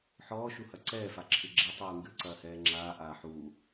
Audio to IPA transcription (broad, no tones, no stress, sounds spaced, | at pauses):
ħ ɔː ʃ u h ɐ ǀ ɛː f a ǁʰ ɨ ɡ͡ǁ ɛ tˤ uː ŋ ɡ ɨ ǀ ɐː h ɛː ŋ͡ǁ aː ʔ aː ħ uː